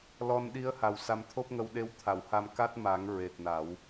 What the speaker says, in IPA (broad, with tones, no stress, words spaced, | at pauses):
lɔ˧nɗi˧˥ə̯ha˨˩w sa˧mt̪ʰo˦˥p̚ŋə˧w ɗe˧wt̪ʰa˨˩˨wha˧m ka˦˥t̚ma˨˩˦ŋ ɹe˨˩t̚na˨˩˦w